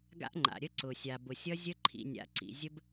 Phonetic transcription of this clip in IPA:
ɡ a̰˧ ʔ ŋ͡ǃ a̰˨ ɾʲ ə˧ ǀ ʊ˨ sʲ a˨ b ʊ˨ sʲ ʌ˧ zʲ ə˧ ǃʰ ḭ˨ nʲ a̰˨ ǀ ḭ˨ zʲ ə˧ b

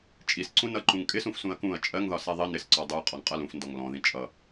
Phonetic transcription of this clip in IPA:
t͡ʃʼ i s ǀ ũ n ʌ ǃ ũ ŋ kʼ ɪ s ũ f s ũ ɐ̯ k ũ ɐ̯ t͡ʃʼ ɜ ŋ ð ɒ s ɛ ðˤ ɪ n ɪ s ǀ ɔ dˤ u ɐ̯ qʼ ɔ ŋ qʼ ʌ l ũ f n d ɔ ŋ l ɔ̃ ð ĩ t͡ʃʼ ʌ

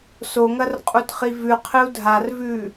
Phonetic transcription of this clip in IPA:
s o ŋ ɐ r qʼ u t χ i v ʉ qʰ ɨ u̯ dʱ a r v ʉ

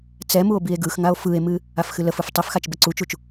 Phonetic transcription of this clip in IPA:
t͡s ɛ m u o̯ b i e̯ ɡ ɯ x ŋ a o̯ f ɯ e̯ m ɨ | a f x ɨ l ə f ɯ f tˤ ɨ f x a t͡ʃ b ə ǀ u t͡ʃ u t͡ʃ

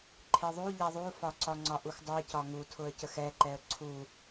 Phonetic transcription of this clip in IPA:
ǃʰ e ðˤ u ʎ ɛ ðˤ u f ɒ ǀ ɒ ŋ͡ǀ ɒ ʔ u x dˤ u ɪ̯ c ɒ ŋ u tʰ ʊ ə̯ c ə x ɛ ǃ ɛ ə̯ ǀʰ u

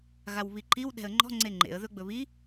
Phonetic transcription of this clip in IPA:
ɣ a w β i ǃ i w ɗ ɛ̤ ə̯ ŋ͡ǃ ɔ̤ ŋ͡ǀ e ŋ͡ǃ ḛ ə̯ ð ɵ ɡ͡b ɵ β i

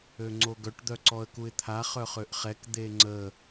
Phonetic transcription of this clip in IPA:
ø ŋ͡ǀ o ɡ œ ʈ d̪ œ ǀ ɔ ə̯ k u ɪ̯ t̪ʰ a χ œ χ ø ʔ χ ɛ k d̪ e ŋ͡ǀ ə

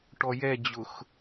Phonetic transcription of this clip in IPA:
ʈ ɔ j ɛ d͡ʑ ʊ x

